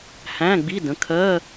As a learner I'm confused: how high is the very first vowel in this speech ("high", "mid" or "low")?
low